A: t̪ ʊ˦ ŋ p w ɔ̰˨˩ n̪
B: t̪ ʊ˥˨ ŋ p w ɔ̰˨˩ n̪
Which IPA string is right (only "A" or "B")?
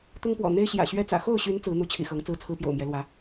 A